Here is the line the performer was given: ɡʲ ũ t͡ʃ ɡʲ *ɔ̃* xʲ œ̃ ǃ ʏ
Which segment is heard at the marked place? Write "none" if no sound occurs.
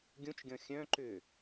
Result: ɔ̃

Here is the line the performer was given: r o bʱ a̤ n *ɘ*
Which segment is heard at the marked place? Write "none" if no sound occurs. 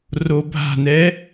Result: ɛ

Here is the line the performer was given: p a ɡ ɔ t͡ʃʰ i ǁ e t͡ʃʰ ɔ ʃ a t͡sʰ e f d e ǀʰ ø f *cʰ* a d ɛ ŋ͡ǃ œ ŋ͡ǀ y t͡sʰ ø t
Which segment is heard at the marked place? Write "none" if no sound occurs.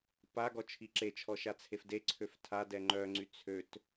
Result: tʰ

